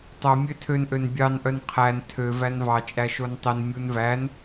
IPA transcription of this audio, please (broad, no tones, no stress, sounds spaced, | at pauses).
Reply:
tˤ œ mʲ ø tʰ ø n ʔ ø n bʲ ɑ n ʔ œ n qʰ æ n tʰ ø v æ n v ɑ t͡ʃʼ æ ʃ o n tˤ i n mʲ u n v æ n